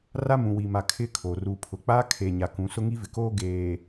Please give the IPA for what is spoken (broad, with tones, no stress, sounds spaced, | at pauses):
r a˦ m ũ˨ w i˨ m a˨ kʰ ɪ˦ kʰ o˨ r u˨ pʰ ʊ˨ k͡p aː˦ kʰ e˨ ɲ a˨ k ũ˨˦ s ʊ˦ ŋ i˦ v ɪ˨ k oː˦ ɡ eː˨